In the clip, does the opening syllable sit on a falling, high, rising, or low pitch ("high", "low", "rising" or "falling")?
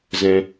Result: low